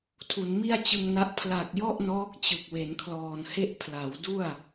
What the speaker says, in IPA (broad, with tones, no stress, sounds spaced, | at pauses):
tʰ u˩˦ n m i˥˩ a̯ t͡ɕ ɯ˧ ŋ n a˦˥ ʔ pʰ l a˨˩ k̚ j ɔ˥˩ ʔ n ɔː˦˥ k̚ t͡ɕ ɯ˨˩ k̚ w e˩˦ n kʰ l ɔː˨˩ n h e˥˩ ʔ pʰ l a˩˦ w d u˥˩ a̯